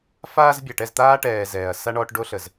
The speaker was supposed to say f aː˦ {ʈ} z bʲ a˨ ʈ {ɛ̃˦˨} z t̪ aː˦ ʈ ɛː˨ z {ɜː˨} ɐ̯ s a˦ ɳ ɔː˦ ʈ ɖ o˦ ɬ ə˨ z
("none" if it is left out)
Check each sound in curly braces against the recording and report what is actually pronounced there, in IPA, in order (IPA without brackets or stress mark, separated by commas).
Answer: none, ɛ˦˨, ɛː˨